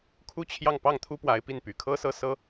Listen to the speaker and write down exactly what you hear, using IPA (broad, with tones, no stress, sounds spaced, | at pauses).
kʰ u˥ t͡ɕʰ j ɑ˥˧ ŋ p ɑ˥˩ ŋ t̪ʰ u˥ p w a˧˥ ɪ̯ p i˥˩ n p y˨˩ kʰ ɤ˥ s ɤ˥˩ s ɤ˥